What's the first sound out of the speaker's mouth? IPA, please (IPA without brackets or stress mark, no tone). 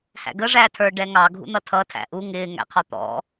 h